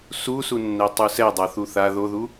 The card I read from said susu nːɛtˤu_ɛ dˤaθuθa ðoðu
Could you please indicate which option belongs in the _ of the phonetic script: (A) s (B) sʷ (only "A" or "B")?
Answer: A